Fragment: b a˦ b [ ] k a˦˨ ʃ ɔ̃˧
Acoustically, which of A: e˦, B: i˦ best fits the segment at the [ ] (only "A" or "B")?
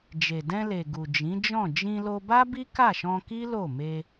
B